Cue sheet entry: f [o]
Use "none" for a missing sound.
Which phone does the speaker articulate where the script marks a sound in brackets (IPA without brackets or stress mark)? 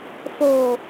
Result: o